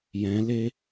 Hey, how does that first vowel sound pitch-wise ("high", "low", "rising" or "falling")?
rising